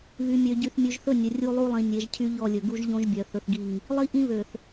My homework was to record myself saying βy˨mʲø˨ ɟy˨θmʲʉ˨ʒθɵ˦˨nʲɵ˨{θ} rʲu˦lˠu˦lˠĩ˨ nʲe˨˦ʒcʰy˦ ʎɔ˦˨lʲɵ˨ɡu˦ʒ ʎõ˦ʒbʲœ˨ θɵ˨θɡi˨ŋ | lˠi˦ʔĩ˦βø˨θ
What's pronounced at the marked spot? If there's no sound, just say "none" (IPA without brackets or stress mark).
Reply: none